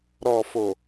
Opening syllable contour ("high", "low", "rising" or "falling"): low